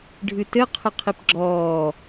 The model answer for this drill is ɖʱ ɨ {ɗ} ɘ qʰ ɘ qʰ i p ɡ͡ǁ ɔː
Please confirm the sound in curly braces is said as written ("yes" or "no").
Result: no